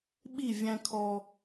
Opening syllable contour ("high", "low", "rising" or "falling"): falling